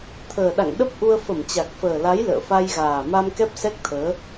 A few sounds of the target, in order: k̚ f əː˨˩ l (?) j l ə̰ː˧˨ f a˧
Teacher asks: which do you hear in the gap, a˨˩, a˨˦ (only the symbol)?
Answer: a˨˦